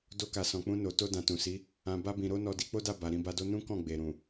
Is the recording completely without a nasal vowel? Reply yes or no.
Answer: no